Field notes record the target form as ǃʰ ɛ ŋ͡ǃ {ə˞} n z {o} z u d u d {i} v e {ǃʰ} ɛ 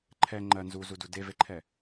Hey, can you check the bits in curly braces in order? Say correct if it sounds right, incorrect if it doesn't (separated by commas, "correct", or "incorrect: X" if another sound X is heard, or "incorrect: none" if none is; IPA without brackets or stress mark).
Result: incorrect: ɜ, incorrect: u, incorrect: e, correct